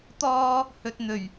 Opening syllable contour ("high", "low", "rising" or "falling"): high